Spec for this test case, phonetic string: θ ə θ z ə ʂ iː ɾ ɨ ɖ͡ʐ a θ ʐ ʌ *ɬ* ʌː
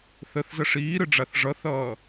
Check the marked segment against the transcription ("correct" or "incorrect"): incorrect